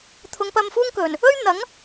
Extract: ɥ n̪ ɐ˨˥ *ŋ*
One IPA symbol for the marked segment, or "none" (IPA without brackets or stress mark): ŋ